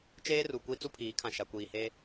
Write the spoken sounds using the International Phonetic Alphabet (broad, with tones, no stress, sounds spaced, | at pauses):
t͡ʃ eː˦ r u˨ kʷ i˦ t͡s u˦ pʰ iː˨˦ kʰ ã˨ ʃ a˨ kʷ iː˨ h e˦